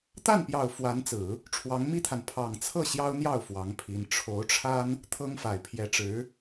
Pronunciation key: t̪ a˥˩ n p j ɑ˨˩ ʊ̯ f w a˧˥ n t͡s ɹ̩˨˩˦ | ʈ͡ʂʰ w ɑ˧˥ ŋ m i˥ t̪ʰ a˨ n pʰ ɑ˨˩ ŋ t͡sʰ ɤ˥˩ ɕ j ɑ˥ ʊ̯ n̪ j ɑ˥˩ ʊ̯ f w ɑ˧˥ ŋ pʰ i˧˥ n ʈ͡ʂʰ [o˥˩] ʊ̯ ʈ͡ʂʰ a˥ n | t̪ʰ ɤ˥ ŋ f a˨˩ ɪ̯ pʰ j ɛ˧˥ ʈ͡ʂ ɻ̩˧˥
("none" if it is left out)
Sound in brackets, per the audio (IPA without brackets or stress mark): o˧˥